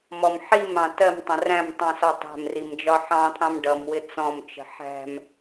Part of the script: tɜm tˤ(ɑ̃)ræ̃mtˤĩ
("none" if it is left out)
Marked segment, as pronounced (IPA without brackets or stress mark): ə̃